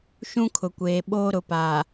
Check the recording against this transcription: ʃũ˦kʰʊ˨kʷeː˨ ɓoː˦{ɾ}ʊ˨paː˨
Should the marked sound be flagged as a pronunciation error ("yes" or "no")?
no